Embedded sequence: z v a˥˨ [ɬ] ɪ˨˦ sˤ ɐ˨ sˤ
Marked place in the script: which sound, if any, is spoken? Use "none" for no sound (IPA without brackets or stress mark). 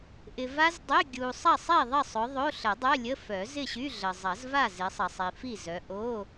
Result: z